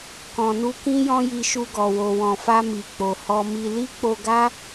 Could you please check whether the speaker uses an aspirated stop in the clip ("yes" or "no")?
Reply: no